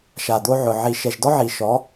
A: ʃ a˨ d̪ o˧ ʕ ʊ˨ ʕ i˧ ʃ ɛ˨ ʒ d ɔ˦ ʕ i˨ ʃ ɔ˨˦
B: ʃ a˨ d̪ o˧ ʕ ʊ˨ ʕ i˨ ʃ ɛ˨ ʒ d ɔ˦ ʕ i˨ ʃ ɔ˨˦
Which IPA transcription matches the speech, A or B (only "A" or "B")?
B